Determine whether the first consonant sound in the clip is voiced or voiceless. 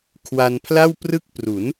voiceless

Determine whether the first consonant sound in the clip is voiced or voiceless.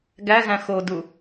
voiced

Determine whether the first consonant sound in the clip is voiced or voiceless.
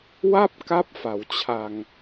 voiced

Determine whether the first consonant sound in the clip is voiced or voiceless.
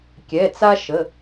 voiceless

